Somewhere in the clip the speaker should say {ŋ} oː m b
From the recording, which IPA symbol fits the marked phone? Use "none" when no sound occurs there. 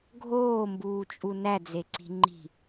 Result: ɡʱ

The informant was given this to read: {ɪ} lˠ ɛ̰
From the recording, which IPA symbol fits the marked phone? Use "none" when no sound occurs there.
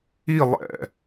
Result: i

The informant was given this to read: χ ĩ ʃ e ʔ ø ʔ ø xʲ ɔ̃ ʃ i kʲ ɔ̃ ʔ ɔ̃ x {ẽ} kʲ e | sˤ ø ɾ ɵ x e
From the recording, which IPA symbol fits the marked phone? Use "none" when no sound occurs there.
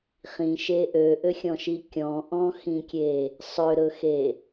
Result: ĩ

